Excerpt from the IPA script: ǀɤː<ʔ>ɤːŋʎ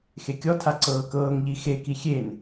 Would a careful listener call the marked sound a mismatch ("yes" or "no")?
yes